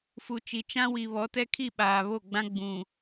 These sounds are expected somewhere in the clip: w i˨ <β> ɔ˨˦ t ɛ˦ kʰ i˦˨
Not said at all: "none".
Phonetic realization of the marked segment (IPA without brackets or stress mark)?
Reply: β